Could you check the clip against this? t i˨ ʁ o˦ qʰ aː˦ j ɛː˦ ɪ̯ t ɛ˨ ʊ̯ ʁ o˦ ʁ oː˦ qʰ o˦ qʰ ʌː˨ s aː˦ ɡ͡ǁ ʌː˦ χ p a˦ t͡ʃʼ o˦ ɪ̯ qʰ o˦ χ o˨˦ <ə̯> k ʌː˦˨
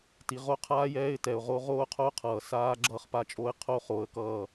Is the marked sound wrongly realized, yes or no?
no